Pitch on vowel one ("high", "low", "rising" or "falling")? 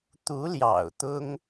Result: rising